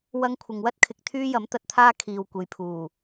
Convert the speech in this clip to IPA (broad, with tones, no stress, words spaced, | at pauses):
wɐ˧ŋkʷʰɪ˨ŋwɐ˥t̚kʰɪ˨k̚ t̪ʰyː˥jɐ˨˥mt̪ɐ˧t̚t̪ʰaː˥ kʰiː˨wkʷe˨jpʰuː˨˩